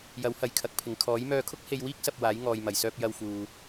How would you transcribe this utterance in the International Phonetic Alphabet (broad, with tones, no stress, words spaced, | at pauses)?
jɐ˨˥whɐ˨j kʰɐ˨˥k̚pʰɪ˨ŋ kʰɔː˨˥j mœː˧kʰʊ˥k̚he˧jwiː˥k̚ sɐ˧p̚waː˨˥j ŋɔː˨jmɐ˨˩jsœː˧p̚ jɐ˧wfuː˨